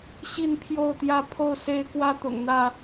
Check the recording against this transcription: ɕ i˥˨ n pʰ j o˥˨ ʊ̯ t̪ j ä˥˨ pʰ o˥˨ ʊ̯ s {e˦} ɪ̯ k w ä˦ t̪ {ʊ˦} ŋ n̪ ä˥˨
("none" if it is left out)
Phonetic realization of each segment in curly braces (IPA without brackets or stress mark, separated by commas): e˦, ʊ̰˨˩